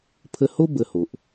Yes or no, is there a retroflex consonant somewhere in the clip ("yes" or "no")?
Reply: no